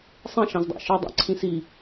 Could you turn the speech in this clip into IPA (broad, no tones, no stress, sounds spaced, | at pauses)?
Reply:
sˤ ẽ ʃ ɑ̃ z dˤ ɑ̰ ʃ ɯ dˤ ɑ̰ ǀʰ ĩ s i